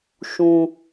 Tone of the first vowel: low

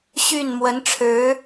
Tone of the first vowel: falling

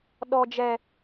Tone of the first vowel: low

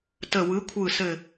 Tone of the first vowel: falling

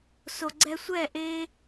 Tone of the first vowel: low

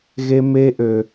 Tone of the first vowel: high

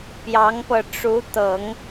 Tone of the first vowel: rising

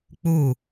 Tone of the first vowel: falling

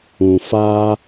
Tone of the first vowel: low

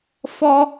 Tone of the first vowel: high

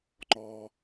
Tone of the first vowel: low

